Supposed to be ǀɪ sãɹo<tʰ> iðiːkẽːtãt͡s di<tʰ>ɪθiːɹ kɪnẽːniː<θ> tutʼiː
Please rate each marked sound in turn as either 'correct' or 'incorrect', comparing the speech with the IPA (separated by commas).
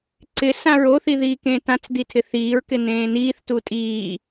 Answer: incorrect, correct, correct